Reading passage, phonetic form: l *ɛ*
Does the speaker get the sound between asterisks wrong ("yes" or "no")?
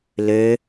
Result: yes